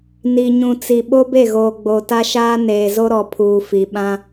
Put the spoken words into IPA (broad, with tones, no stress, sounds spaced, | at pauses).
n i˨ ɲ ũ˨ t͡s i˨ ɓ o˦ b e˦˨ ɣ oː˨ ɡ͡b o˨ t a˦ ʃ aː˦ n eː˨ z o˦ ɾ ɔ˨ pʰ uː˨ f i˨ ɓ ã˦